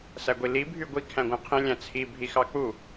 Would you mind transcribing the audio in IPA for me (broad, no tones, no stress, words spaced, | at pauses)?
sæɡʷili bʱyɡʷi kʰæ̃ɡʷæ̃qʰĩ lʲæ̃t͡sʰi bʱixɑk͡pu